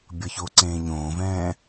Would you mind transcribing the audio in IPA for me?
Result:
bʲ ʌ ç o ǀ ẽː ɲ õː v ɛ̃ː

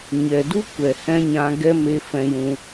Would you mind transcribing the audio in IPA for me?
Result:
ɲ ɛ˨ d u˦ kʷ ɛ˨ h ɛ̃˦ ɲ ã˧ ɡ ɛ˦ m e˦ f ɛ̃˧ j ũ˧

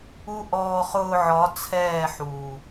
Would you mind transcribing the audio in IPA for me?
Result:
u˦ ʔ ɔː˧ χ ʊː˧ ʕ ɒ˨˦ t͡sʰ ɛː˦˨ ħ uː˨

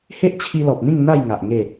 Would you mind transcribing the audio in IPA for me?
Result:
h e˦ ʔ t͡ɕʰ i˧ l ɔ˨ p̚ n̪ ĩ˥˧ ŋ n̪ a˥˧ j ŋ a˨ ʔ ŋ e˥˧

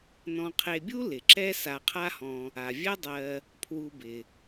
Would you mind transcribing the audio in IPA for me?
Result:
n ɔ̃˨ qʰ e˨ bʲ u˦ l ɪ˩ ǁ ɛ˥ s a˨ qʰ a˦ h ɔ̃˨ | a˩ vʲ ɛ˦ dˤ ɜ˨ | pʰ w u˨ b ɪ˩

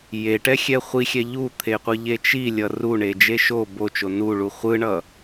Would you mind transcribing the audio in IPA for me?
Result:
j e ʈ ɛ xʲ ɛ χʷ i xʲ ɛ ʎ u t̪ʰ e qʷ ɯ ʎ e t͡ʃ i lʲ ʌ r u ɳ e d͡ʒ e ʃ o b o t͡ʃ o n u ɭ u χʷ ɯ ɳ ʌ

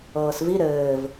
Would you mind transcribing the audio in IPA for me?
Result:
ɤː s v i ɾ ɘː v

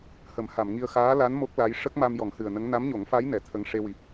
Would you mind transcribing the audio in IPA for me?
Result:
h ə˨˩˦ m h a˨˩˨ m ŋ i˧ ə̯ x aː˧˥ l a˧˥ n m o˦˥ k̚ l a˧˥ j ʂ ə˦˥ k̚ m a˧ m j ɔ˨˩˦ ŋ h ɨ˨˩ ə̯ n ə˧˥ ŋ n a˧˥ m ɲ o˨˩˦ ŋ f a˧˥ j n ɛ˨˩˨ t̪ʰ ə˧˥ ŋ ʂ e˧ w i˨˩ p̚

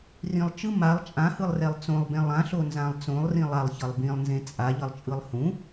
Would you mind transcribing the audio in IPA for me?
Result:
r ĩ lˠ t͡ʃ ɯ m a lˠ t͡ʃʼ ã h ɯ lˠ r ɛ lˠ t͡s õ lˠ b ẽ lˠ ã ɬ o n z ã lˠ t͡s õ lˠ r ĩ lˠ a lˠ ç ʌ lˠ b ĩ lˠ n z ẽ t͡sʼ a ʎ ʌ lˠ t͡ʃʼ ɯ lˠ h ũ

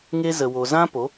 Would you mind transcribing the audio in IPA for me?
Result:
ŋ e˧ z ə˨ w o˨ z ã˦ p o˨˦

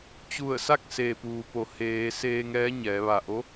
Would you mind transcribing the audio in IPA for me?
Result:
t͡ɕ u˧˩ ə̯ s a˥˨ k̚ s eː˩ p uː˩ p o˩˧ h eː˩˧ s eː˧ ŋ ɛː˧˥ ɲ ɛː˩˧ ʋ a˧˩ ʔ o˧˥

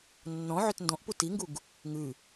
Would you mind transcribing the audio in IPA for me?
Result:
nː ɔ̃ ʕ ø t n d ɔ̃ ʔ p u t i ŋ ɡ u ɡ | ŋ ʉ

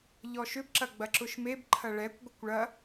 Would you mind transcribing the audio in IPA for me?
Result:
ʎ ɔ ʃ ʏ b ǁ ɐ ɡ͡b ɐ ǁ ʊ ʃ m e b ǃʰ ɐ ɭ ɛ kʷ ɡʷ ə kʷ ɭ ɐ

